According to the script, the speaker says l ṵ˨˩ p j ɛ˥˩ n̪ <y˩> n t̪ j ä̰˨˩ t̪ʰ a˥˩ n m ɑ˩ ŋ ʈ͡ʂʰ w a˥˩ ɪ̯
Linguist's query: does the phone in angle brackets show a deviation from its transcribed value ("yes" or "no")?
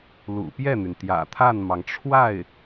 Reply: no